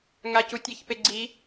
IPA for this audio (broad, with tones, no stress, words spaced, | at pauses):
ŋa˨cu˨ tʲɛ˨çpe˨ɡ͡ǀi˨˦